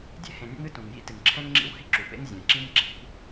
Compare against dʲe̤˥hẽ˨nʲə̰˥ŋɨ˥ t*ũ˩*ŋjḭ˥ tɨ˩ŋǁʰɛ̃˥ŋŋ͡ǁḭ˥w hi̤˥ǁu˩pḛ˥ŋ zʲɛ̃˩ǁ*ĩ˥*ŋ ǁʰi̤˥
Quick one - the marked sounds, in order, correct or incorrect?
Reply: correct, correct

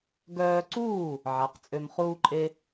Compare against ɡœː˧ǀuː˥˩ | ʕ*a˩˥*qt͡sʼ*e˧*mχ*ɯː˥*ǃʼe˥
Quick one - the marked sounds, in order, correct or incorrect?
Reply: correct, incorrect: ø˧, incorrect: uː˥

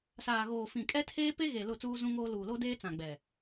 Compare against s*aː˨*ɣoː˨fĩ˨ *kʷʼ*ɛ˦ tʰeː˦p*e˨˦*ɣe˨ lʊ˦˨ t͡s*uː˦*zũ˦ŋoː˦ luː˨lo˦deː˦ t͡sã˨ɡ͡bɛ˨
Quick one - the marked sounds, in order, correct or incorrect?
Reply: correct, incorrect: kʼ, incorrect: e˦, correct

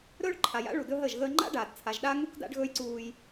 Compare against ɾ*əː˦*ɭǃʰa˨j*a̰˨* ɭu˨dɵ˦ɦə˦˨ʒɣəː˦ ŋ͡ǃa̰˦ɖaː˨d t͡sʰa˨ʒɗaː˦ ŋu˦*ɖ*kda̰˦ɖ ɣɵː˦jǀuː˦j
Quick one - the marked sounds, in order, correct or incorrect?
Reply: incorrect: ɵː˦, incorrect: a̰˦, incorrect: none

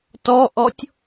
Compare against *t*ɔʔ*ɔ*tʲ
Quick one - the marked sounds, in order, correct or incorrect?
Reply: correct, correct

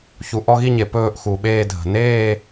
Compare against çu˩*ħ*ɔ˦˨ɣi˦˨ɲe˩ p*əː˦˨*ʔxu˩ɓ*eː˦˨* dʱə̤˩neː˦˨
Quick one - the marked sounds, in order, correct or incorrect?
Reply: incorrect: ʔ, incorrect: ɵː˦˨, correct

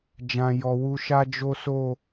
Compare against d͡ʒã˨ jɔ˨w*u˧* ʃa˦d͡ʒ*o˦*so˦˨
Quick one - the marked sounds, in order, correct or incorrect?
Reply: correct, correct

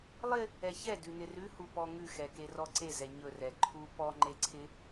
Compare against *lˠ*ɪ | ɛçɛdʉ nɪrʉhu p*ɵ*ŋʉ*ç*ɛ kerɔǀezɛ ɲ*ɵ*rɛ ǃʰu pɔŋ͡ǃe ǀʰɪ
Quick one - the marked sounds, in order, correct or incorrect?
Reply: correct, incorrect: ɔ, incorrect: x, correct

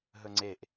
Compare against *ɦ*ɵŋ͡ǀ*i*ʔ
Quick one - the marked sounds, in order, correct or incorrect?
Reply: correct, incorrect: e

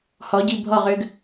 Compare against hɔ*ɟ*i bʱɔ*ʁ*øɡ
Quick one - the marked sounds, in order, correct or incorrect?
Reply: correct, correct

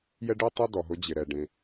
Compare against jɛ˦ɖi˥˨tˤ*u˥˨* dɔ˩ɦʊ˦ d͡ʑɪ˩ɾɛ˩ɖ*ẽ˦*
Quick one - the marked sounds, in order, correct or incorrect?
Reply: correct, incorrect: ẽ˩

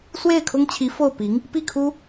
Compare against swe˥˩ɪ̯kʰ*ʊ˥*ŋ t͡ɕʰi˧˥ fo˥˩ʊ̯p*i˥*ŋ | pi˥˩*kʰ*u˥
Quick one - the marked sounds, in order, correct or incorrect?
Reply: correct, incorrect: i˧˥, correct

